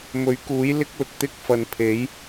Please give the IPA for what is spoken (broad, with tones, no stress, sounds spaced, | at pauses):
m ɵ˨˥ ɥ k uː˨˥ j l ɪ˧ k̚ l ʊ˨ k̚ t̪ ɪ˧ k̚ f ɐ˨˧ n pʰ e˨˥ j